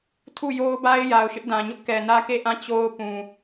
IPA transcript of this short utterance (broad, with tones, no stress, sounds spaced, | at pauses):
tʰ u˦˨ j o˦ ʊ̯ b a˦ ɪ̯ j a˨ ʊ̯ ʃ ɪ˦ ʔ d ã˨ ɲ ʊ˦ ʔ k ɛ˨ n ä˦ k e˦˨ ʔ ã˦˨ t͡ɕ o˦ ʊ̯ p ũ˨